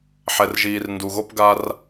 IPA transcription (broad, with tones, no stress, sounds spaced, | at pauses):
ħ ɛ˨ r ʒ iː˨ r n d u˨ ɣ o˦ p ɡ a˦ r